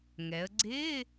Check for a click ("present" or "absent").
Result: present